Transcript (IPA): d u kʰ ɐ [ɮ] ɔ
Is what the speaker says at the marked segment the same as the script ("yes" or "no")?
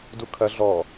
yes